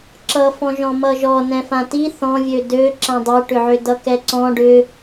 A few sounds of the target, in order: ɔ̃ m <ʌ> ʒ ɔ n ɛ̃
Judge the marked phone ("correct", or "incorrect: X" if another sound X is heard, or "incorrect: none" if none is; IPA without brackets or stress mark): correct